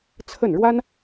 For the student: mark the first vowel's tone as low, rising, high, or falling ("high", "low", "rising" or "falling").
falling